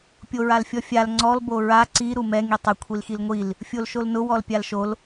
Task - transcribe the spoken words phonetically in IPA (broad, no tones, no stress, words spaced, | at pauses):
pʲoɹalfʲɔfʲal ŋ͡ǀɔl boɹa ǀi ɾumɛ ŋitˤɪ kʷʰilxilŋʷil | fʲolʃolnʊ wɔlpʲalʃol